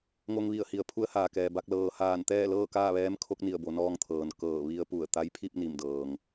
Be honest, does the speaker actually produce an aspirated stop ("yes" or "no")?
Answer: yes